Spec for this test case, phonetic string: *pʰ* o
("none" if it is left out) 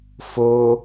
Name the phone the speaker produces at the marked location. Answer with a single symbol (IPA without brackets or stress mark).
f